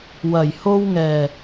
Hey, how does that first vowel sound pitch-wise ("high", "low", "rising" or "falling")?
low